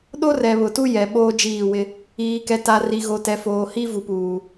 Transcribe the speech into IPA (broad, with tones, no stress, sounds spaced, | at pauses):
ɗ o˦ r ɛ˨ β ʊ˨ t u˦ j ɛ˨ ɓ oː˦ d͡ʒ iː˦˨ w ɪ˦ | iː˨ k ɛ˨ t a˨ r i˨ ɣ o˨ t ɛ˨ f oː˨ h i˦ v u˨ p uː˨